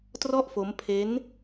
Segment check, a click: absent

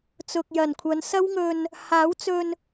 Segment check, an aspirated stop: present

